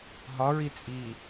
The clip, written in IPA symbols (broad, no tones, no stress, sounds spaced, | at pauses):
ɦ ɒ ɹ i t͡sʼ i